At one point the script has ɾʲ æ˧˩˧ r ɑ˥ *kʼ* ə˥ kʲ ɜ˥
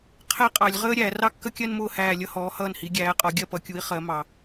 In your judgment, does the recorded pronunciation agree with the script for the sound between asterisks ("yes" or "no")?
no